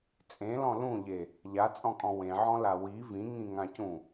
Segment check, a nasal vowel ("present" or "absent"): present